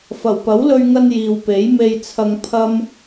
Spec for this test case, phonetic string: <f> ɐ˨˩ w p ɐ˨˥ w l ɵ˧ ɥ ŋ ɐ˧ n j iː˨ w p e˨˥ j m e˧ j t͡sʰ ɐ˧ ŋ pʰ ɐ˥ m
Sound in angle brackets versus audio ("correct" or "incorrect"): correct